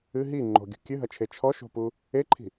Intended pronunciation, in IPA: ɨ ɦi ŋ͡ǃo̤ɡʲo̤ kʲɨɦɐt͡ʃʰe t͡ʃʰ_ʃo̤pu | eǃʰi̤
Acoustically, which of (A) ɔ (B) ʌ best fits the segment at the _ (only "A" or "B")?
A